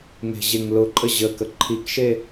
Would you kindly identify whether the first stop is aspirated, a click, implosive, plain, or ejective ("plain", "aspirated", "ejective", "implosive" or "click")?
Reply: click